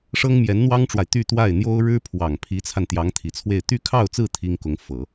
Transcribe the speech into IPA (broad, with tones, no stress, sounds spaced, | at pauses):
ʂ ɤ˥ ŋ m j ɛ˧˥ n n̪ w ɑ˥ ŋ ʈ͡ʂ w a˨ ɪ̯ t̪ y˥˧ t̪ w a˥˩ ɪ̯ n̪ j o˥ ʊ̯ ɻ ɻ̩˥ pʰ w ɑ˨˩ ŋ pʰ i˧˥ t͡sʰ a˧ n t̪ j ɑ˧˥ ŋ t̪ʰ i˨˩ t͡sʰ w e˥˧ ɪ̯ t̪ y˥˧ kʰ ɑ˥˧ ʊ̯ t͡s ɹ̩˥˩ t̪ʰ i˥ ŋ k ʊ˧˥ ŋ f ɤ˨˩˦